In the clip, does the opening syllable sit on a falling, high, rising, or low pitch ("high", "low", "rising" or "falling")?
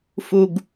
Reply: low